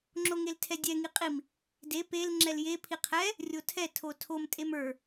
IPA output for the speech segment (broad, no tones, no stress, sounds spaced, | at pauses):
ŋ͡ǁ o ŋ e l tʰ ɛ dʲ ɛ ŋ i qʼ i m | d e p e l ŋ͡ǁ ɛ l j e pʰ i qʰ ɛ | rʲ o tʰ ɛ tʰ o tʰ o m tʼ e m ə˞